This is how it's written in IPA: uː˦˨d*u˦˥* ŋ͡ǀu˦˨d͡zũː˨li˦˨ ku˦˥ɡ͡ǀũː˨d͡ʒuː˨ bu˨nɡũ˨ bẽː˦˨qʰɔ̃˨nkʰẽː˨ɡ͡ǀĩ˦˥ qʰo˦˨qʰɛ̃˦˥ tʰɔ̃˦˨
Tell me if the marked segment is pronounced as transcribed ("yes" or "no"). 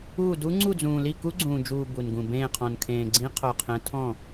yes